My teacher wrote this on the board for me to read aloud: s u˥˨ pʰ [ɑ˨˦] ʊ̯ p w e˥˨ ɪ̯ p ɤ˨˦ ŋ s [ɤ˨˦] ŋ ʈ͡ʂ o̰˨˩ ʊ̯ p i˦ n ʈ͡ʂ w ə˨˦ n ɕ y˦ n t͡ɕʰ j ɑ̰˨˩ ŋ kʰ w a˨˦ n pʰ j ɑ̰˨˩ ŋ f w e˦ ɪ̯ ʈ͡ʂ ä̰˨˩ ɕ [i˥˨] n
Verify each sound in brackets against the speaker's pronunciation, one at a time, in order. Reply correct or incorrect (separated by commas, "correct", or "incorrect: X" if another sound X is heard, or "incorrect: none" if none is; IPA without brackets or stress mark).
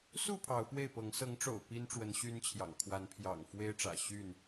correct, correct, incorrect: y˥˨